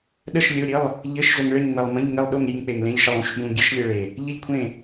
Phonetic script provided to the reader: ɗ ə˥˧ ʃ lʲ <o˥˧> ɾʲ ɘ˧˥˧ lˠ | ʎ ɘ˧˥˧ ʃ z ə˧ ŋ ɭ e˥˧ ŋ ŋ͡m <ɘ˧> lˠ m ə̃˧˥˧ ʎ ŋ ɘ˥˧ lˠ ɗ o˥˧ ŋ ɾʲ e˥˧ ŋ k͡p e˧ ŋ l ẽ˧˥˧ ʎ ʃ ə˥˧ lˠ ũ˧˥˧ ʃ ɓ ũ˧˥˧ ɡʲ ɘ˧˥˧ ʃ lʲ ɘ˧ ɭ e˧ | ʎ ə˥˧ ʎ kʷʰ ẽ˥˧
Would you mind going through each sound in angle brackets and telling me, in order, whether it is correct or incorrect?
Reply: incorrect: o˧˥˧, correct

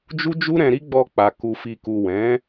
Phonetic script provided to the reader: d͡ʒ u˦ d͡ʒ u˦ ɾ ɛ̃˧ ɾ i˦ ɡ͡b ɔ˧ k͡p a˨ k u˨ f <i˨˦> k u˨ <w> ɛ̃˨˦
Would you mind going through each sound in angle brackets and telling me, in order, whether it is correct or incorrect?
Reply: incorrect: i˨, correct

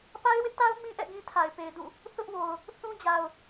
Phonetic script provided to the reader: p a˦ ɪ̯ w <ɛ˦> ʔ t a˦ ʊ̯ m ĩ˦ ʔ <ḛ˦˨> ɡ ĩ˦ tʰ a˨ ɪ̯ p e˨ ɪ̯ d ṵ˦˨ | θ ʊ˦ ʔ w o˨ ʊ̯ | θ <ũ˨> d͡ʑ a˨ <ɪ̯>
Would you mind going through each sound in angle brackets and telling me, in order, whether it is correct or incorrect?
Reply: incorrect: ɪ˦, incorrect: ɛ̰˦˨, incorrect: ũ˦, incorrect: ʊ̯

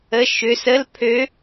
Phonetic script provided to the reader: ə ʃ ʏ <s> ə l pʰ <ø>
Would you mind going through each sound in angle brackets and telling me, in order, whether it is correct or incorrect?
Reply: correct, correct

